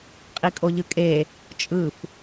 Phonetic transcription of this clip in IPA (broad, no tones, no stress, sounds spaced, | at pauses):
qʼ i kʼ o ʎ ɯ kʼ e | t͡ʃʼ ɯ f